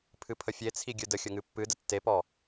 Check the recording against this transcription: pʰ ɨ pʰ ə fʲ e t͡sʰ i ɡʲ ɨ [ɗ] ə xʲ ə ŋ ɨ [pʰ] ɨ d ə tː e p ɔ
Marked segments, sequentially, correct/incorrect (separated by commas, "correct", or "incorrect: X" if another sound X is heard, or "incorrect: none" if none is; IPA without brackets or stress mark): incorrect: d, incorrect: pː